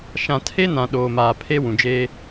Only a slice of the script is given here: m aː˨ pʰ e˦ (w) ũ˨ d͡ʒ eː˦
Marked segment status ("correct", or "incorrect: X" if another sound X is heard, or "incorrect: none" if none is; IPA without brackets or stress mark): correct